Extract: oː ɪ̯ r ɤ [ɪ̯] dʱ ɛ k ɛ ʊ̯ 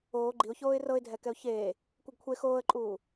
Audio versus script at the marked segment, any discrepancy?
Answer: no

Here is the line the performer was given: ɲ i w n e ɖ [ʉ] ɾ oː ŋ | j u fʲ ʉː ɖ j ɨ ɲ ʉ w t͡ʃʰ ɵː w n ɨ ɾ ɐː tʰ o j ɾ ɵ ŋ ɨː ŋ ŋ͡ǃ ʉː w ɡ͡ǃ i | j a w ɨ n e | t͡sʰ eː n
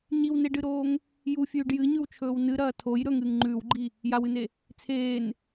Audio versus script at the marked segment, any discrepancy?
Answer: yes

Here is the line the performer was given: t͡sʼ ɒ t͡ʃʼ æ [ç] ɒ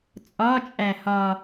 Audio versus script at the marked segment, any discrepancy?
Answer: yes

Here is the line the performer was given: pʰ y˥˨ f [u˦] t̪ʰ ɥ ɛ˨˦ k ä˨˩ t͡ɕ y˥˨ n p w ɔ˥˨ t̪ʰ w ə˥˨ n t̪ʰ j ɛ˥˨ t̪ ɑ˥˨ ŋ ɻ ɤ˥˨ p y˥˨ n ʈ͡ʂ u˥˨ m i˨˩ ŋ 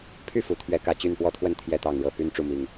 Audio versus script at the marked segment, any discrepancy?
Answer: yes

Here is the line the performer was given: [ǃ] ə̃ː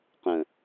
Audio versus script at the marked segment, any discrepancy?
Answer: yes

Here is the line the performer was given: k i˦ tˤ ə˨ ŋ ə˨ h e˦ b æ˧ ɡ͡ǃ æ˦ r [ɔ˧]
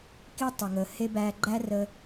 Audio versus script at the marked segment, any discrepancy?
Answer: yes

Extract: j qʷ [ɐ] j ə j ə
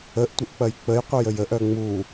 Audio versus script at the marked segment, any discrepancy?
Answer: yes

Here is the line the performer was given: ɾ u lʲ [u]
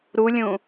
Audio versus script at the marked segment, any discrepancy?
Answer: yes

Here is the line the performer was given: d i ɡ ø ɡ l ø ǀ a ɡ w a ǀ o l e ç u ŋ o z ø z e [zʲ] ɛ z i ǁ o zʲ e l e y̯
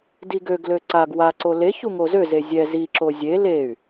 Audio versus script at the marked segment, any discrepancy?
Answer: no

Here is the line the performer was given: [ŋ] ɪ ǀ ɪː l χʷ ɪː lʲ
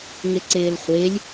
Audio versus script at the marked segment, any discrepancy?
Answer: no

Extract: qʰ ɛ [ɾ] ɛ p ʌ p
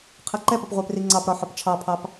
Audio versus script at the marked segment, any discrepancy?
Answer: yes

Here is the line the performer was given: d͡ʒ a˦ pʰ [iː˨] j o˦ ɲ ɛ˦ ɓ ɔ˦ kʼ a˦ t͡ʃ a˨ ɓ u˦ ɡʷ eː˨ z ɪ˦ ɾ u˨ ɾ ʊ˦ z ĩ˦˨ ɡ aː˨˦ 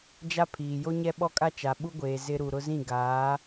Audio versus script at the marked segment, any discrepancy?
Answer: no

